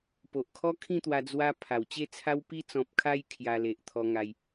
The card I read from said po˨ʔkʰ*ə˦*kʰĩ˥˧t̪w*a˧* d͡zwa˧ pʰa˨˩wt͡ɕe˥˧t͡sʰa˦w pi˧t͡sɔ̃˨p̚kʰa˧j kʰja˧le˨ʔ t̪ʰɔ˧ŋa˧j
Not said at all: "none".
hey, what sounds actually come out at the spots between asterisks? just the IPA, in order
ɔ˦, a˧

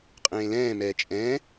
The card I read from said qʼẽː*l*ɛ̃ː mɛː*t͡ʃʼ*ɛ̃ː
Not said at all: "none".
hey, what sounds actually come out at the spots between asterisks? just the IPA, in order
l, t͡ʃʼ

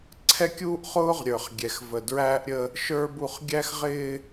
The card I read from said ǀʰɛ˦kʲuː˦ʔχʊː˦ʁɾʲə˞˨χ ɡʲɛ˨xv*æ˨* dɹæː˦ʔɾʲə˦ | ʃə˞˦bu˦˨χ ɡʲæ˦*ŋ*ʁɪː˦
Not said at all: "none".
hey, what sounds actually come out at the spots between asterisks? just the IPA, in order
ə˨, x

